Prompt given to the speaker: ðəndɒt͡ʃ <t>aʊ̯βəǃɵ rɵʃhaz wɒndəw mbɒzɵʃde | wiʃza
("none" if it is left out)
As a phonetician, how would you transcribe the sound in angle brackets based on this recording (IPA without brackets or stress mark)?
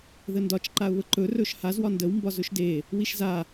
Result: ǃ